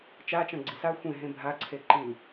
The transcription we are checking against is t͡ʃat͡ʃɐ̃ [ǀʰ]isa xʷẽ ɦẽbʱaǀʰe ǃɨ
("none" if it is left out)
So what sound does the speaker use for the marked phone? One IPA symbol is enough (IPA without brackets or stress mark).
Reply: ɡ͡ǀ